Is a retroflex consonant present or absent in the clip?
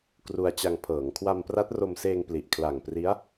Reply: absent